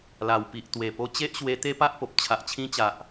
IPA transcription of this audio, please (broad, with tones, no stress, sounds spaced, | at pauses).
l a˨˩ w p i˨ ʔ t̪ w e˨˩ p o˧ t͡ɕ e˦ ʔ ɕ w e˧ t̪ e˦ p a˦ ʔ p o˨ p̚ t͡ɕʰ a˨ ʔ t͡ɕʰ ĩ˧ t͡ɕ a˨ ʔ